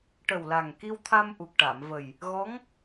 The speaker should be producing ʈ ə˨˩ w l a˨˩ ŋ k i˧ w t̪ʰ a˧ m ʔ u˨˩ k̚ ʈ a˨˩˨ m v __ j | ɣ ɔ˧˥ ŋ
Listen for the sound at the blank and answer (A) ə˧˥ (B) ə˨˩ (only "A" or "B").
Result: B